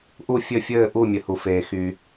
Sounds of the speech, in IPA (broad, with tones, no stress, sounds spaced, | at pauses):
ʔ u˦˨ fʲ ɘ˦˨ fʲ ɘː˦˨ ʔ u˦˨ mʲ ɘ˩ h u˩ f eː˩ x y˩